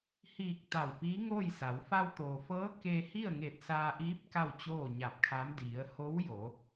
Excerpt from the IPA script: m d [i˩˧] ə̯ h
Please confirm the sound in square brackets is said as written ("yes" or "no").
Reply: yes